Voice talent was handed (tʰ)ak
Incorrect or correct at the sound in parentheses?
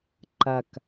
incorrect: ǃ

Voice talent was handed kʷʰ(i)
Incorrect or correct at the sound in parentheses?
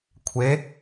incorrect: e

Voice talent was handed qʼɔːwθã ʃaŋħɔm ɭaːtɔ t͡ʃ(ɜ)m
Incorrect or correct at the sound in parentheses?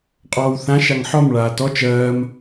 incorrect: ɜː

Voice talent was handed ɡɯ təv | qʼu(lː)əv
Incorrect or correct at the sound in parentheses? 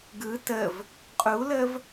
incorrect: l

